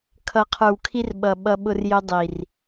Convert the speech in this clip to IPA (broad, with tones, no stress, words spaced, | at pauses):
kʰʌ˨qʰə˞˨wkʰi˦r ɓʌ˨ ɓʌ˦ɓʊ˦rjʊ˦ dˤi˨r